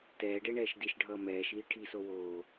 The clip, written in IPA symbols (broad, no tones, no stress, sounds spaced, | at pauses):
t ɛː ɖ e ɳ ɛː ʃ d i ʃ ɖʱ ʌː m ɛː ʃ iː ʈʰ i s o w oː